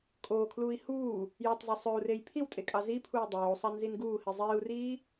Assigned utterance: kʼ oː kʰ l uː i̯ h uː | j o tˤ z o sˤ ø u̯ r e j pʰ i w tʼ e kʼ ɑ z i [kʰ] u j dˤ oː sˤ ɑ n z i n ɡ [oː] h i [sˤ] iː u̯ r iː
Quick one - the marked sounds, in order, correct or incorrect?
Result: incorrect: pʰ, incorrect: uː, incorrect: zˤ

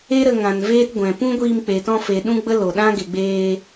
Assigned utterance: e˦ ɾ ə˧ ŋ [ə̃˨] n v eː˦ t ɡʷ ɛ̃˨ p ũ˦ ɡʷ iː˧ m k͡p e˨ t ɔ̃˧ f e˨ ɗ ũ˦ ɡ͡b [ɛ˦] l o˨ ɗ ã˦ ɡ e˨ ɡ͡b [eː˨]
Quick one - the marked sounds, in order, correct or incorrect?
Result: incorrect: ã˨, incorrect: ə˦, incorrect: eː˧

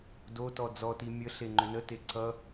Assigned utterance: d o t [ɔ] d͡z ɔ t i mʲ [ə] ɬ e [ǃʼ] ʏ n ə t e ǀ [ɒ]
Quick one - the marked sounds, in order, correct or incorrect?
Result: correct, correct, incorrect: ŋ͡ǃ, incorrect: ʌ

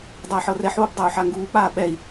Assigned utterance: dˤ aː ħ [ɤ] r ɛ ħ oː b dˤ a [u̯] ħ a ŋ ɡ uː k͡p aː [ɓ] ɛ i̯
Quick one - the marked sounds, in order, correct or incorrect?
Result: correct, correct, correct

